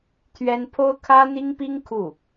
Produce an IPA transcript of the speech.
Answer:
t̪ʰɥɛ˥n pʰo˥ʊ̯kʰä˥n̪i˥ŋpi˥ŋ kʰu˥˩

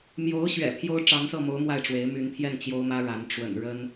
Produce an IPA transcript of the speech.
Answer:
mjo˧˥ʊ̯ɕɥɛ̰˨˩ pʰjo˥ʊ̯ʈ͡ʂɑ˧˥ŋsɤ˥˩mo˧˥ʊ̯ mwa˥˩ɪ̯ʈ͡ʂwe˧˥ɪ̯ my˧˥npʰjɛ˥˩n t͡ɕjo˥ʊ̯mä˥ɻa˧˥n ʈ͡ʂwə̰˨˩nɻə˥n

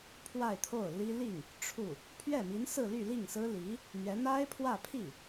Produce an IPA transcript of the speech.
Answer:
pʰwa˥˧ɪ̯t̪ʰo˥˩ʊ̯li˥ li˥˩ŋ | ʈ͡ʂʰu˥˩ | pʰɥɛ˥˩mi˧˥nsɹ̩˥˧ly˥˧ li˥˩ŋsɹ̩˥li˧˥ | n̪ɥɛ˧˥ n̪a˥ɪ̯pʰwä˥˧ pʰi˥˩

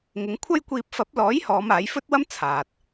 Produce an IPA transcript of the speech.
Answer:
ŋɪ˨˧ŋkʷʰɐ˥jkʷiː˧p̚ fɐ˨˥p̚lɔː˨˥jhɔː˨˧m aː˨˥jfɵ˥t̚wɐ˥m t͡sʰaː˨t̚

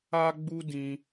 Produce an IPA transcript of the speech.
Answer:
a˦ɡ͡bu˦ dĩ˧

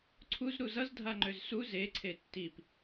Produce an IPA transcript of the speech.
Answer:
ǀʰuzɾu zʌzdʱaŋ͡ǃøz su zeǀʰe tːip

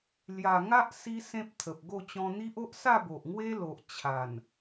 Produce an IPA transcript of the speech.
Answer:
lja˨˩ŋa˦ʔ si˦sẽ˦p̚t̪ʰə˨p̚ɡo˥˧ t͡ɕɔ̃˧n̪i˦ʔo˦ʔ sa˥˧bo˨ʔŋwe˦lo˨ʔ t͡ɕʰa˨˩n

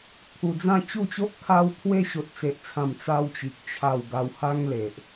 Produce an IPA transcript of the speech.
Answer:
t̪ʰu˧d͡zã˥˧ t͡ɕu˥˧t͡ɕo˦ʔ kʰa˧wpʰwe˧ ɕo˦t̚t͡se˦ʔt͡sʰã˥˧m t͡sa˧wt͡ɕi˨k̚ t͡ɕʰa˥˧w ɡa˧wha˦ŋle˨ʔ

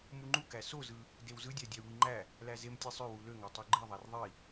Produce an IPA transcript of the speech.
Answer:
muŋ͡ǃu kæsozɯ | dewzɯdʲæ dʲæu̯wiŋ͡ǃæ | læzem tʲesˤøwu løŋætˤu ɡ͡ǃiðˤær ðˤi

